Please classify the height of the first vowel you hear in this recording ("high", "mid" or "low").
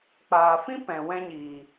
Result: low